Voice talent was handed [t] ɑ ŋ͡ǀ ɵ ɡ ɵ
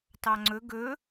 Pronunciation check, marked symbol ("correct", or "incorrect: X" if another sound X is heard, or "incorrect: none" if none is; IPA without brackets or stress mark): correct